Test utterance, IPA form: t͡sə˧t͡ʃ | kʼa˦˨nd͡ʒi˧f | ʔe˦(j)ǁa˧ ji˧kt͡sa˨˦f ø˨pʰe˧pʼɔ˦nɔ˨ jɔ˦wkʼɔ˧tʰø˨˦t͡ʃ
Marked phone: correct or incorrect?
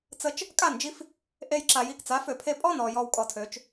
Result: correct